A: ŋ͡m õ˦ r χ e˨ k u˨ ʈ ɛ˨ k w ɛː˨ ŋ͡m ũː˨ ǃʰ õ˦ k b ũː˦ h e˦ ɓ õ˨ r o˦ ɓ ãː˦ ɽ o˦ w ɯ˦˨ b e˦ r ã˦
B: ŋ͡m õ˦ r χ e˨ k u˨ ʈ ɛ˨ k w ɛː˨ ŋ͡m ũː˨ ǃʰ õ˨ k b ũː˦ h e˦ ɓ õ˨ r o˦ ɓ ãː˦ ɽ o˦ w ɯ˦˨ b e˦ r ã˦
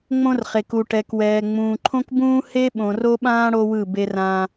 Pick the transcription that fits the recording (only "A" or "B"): A